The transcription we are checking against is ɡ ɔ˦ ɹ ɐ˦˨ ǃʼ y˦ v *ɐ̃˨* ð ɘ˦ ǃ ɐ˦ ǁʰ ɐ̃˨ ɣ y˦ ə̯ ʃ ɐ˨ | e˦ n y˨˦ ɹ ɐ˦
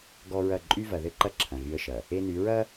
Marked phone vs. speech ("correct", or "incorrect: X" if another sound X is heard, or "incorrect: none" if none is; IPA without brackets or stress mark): incorrect: ɐ˨